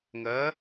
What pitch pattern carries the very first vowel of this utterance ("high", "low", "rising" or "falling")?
rising